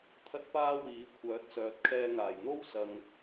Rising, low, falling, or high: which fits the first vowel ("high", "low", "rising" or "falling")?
high